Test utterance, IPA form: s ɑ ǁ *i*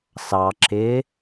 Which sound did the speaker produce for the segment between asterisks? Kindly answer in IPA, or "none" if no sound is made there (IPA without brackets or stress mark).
ɪ